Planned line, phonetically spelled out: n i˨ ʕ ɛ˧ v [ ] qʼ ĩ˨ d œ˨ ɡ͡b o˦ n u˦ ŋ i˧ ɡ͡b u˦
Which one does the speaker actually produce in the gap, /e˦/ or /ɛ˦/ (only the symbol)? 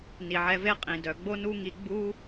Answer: e˦